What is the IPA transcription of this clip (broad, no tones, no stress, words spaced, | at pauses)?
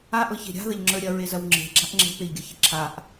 aʔɤçe̤ ɾʲa̤ðɐʎŋ͡ǁə˞ ɾʲɐɹezɐw ŋ͡ǁe̤ɡ͡ǁaʔ ŋ͡ǁe̤peʎɡʲɐçe ǁʰaʔ